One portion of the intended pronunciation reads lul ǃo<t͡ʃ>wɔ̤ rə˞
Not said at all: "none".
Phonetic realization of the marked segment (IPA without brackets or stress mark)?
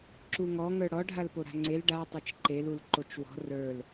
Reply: t͡ʃ